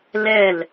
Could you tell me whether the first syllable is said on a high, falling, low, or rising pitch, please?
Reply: falling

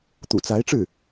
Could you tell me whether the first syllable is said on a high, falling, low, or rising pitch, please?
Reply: low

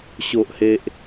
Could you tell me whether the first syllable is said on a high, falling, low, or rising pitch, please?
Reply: high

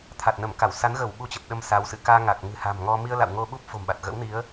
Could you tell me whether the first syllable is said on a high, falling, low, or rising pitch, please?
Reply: low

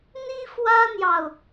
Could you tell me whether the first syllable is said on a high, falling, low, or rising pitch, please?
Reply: high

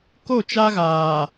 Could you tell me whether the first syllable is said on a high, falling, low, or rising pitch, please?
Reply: falling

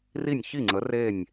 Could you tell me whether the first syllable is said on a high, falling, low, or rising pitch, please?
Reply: falling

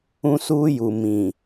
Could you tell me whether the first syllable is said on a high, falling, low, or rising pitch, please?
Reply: high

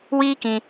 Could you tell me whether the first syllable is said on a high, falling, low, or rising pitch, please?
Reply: high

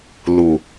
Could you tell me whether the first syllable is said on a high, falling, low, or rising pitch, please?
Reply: low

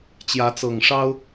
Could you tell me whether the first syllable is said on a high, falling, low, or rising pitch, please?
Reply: rising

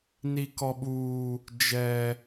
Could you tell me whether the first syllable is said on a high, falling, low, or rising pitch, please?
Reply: high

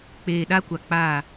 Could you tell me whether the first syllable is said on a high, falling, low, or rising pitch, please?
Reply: low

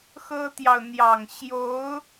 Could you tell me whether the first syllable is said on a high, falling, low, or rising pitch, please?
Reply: high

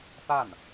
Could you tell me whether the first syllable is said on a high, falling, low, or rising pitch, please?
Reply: falling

